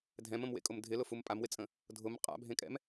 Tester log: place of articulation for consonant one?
alveolar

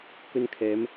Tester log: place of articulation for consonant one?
velar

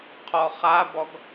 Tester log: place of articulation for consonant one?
uvular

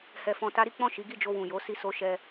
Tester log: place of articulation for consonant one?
glottal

